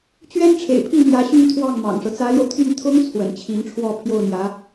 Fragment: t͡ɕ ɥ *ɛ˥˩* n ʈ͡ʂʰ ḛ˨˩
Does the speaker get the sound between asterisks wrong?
yes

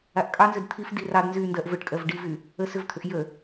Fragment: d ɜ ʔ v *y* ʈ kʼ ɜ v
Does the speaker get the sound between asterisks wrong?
yes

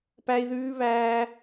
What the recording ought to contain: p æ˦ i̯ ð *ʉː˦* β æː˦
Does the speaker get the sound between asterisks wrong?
no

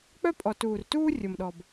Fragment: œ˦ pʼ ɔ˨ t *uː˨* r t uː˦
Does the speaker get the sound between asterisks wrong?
no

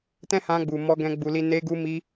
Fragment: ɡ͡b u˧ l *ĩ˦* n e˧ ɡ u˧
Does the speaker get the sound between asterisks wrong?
yes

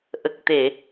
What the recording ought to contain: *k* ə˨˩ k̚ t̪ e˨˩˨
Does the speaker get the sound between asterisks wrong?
yes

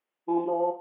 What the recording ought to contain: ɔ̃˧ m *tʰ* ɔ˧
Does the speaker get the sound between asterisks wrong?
yes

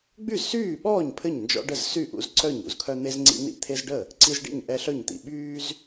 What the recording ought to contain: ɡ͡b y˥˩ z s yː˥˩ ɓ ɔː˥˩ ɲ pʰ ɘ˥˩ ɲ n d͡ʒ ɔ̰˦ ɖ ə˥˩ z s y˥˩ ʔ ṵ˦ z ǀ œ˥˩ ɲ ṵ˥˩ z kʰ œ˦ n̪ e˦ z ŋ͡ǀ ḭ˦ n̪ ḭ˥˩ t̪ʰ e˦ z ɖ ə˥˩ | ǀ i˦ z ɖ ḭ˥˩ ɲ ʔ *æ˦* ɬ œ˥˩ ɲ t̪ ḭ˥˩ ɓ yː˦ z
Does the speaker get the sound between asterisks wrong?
yes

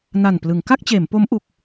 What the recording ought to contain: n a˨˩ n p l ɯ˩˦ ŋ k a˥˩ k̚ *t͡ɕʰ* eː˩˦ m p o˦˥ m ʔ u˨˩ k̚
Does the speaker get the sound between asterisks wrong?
yes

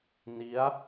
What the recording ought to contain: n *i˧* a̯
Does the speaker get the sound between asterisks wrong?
yes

